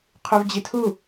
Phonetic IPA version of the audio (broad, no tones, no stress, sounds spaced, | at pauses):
qʰ u v d͡ʑ i tʰ u